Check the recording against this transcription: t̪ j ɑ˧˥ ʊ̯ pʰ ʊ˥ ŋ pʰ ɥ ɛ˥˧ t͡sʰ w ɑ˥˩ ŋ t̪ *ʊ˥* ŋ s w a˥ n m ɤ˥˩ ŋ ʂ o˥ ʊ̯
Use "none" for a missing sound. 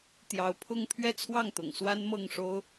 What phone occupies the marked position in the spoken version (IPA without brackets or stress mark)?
ʊ̰˨˩